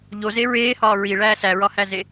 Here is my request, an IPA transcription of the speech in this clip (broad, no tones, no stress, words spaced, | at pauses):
ʎoze ɹeːhɒː ɹiɭæː sæɹɒhæze